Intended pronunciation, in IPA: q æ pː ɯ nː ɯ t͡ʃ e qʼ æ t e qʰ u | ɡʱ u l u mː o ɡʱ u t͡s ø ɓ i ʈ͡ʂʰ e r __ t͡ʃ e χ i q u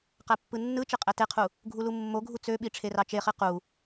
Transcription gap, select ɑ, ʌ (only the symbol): ɑ